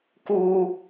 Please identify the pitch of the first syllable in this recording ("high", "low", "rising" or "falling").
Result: low